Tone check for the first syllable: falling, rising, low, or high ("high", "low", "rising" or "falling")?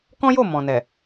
high